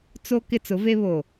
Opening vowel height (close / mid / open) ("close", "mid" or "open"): mid